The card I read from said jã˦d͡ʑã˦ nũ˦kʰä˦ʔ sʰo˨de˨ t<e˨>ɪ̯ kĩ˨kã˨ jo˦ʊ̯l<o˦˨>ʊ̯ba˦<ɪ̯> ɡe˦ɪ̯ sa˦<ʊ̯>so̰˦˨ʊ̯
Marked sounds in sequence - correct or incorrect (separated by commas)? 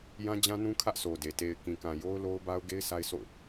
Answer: correct, incorrect, incorrect, incorrect